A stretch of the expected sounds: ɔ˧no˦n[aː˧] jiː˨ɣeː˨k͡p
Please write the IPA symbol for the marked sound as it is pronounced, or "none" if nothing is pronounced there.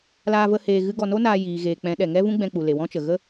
aː˧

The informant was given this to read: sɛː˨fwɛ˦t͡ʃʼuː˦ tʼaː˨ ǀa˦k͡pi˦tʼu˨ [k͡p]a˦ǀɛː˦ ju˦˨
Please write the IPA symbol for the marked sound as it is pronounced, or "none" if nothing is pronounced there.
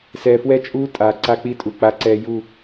k͡p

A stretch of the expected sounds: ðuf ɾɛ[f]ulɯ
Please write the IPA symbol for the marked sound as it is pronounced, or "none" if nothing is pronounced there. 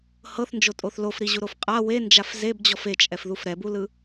b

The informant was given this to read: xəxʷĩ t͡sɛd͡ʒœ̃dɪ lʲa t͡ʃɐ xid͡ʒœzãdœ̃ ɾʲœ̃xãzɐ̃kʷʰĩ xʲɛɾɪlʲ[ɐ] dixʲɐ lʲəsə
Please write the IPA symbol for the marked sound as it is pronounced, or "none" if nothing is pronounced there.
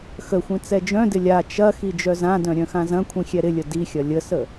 ə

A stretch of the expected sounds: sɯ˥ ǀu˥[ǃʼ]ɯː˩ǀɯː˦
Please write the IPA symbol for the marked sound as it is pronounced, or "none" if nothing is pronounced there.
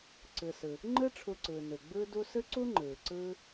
ŋ͡ǃ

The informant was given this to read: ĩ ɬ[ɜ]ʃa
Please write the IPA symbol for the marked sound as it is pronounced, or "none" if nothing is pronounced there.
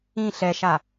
ɛ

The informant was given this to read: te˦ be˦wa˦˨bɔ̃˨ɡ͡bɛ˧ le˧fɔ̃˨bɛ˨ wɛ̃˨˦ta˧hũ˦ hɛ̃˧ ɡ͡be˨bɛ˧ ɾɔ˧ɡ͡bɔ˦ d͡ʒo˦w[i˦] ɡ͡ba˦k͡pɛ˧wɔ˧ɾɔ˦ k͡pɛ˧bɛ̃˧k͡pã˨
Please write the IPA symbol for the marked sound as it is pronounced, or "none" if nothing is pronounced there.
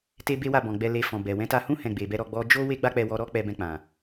e˦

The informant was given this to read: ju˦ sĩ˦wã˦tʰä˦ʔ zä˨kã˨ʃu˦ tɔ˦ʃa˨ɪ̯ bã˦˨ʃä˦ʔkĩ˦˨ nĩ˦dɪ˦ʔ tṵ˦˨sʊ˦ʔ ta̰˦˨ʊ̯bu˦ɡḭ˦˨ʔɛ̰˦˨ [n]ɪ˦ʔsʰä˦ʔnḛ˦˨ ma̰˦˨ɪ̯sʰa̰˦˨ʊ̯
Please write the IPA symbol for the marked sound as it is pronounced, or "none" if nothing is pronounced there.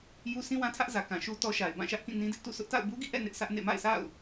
n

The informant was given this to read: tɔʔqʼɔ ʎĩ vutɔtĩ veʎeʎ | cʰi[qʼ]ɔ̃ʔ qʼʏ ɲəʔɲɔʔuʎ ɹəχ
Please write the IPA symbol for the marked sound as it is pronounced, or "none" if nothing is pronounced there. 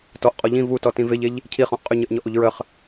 χ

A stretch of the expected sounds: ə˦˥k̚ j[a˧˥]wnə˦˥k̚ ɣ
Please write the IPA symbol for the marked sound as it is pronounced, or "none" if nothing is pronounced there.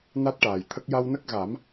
a˧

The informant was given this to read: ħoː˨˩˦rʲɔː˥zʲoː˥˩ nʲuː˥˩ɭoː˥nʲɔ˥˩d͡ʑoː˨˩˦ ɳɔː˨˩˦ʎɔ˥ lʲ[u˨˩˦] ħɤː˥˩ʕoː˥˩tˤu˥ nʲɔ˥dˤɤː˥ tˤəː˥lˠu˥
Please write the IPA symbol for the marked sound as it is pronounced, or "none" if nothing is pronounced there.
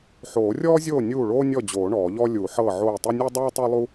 u˨˩˦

